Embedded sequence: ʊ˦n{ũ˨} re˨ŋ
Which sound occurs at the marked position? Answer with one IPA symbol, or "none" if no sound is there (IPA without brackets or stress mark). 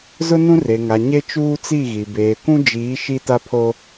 ũ˦